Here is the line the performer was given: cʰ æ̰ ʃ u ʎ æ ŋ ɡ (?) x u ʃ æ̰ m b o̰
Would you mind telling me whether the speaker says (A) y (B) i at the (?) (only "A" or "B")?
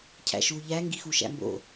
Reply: B